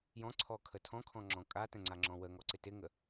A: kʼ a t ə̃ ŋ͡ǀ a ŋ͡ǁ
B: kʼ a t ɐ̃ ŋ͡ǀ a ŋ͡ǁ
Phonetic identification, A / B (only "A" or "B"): A